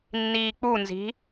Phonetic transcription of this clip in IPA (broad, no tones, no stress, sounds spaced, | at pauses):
nː iː k͡p u n z i̤